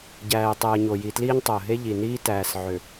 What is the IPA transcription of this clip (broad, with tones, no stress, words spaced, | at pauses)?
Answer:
ɟæː˨ɪ̯tˤe˨ə̯ɲo˨ ji˨tliː˦ɲ tˤo˨ə̯ɦe˦ ʎi˨niː˦ tæː˨sʕø˨